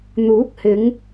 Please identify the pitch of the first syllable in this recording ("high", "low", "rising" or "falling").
rising